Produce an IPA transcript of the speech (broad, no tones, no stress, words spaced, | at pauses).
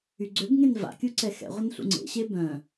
yɡ͡ǀøbŋẽn va̰kʲu ǀɛxɛ̰ʁʷən ɬṵŋ͡ǀḛɕe bœ̃